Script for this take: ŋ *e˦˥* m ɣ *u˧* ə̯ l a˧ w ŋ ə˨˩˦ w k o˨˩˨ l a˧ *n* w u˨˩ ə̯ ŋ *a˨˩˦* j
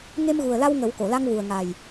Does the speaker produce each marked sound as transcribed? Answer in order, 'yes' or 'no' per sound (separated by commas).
no, no, no, no